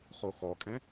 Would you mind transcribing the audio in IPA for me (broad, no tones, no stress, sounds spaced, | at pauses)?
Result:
χ o x ɔ kʼ ɛ̃